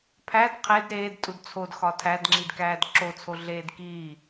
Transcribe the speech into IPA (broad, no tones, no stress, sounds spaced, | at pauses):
pʰ æ d qʰ e d ɾ eː d tʼ u d t͡sʰ o d x ɒ tʰ æ d ŋ͡ǁ i d k æː d ǁ o t͡sʰ o ɮ eː d k iː